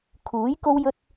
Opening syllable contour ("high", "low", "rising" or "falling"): rising